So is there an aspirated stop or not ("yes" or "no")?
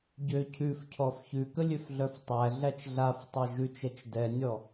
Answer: yes